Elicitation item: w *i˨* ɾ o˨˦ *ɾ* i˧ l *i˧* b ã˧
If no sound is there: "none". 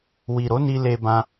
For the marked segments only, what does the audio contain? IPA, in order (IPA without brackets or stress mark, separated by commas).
i˨, n, e˧